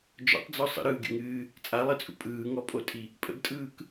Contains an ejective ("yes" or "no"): yes